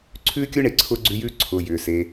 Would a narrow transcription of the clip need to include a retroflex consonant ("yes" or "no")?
yes